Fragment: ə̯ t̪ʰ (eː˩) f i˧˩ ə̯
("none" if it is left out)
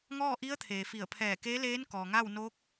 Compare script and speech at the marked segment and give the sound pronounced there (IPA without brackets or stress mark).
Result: eː˩